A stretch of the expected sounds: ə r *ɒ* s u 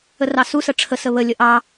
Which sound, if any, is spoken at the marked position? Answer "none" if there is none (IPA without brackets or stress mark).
ɑ